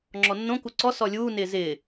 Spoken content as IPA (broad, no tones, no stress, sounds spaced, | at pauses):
ŋ͡ǁ ɔ nː õ k u ǀ ɔ s ɔ lʲ uː n ɪː z ɪː